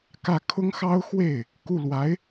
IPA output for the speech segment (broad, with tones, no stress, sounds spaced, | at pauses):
k ä˥˩ kʰ ʊ˥ ŋ x ɑ˥ ʊ̯ x w e˥˩ ɪ̯ | k u˥˩ l w a˧˥ ɪ̯